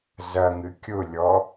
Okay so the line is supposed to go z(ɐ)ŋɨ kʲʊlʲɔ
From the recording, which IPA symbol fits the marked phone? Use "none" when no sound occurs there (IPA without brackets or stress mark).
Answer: ɐ